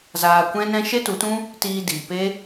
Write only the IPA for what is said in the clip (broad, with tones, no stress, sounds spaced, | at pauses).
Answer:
z aː˧ kʷ ɛ̃˦ n ɛ̃˦ ʃ e˦ t u˨˦ t ũ˦ | t iː˧ d iː˨ p e˦